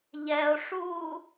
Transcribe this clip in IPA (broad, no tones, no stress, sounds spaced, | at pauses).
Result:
ʎ ɛ o̯ ʂ uː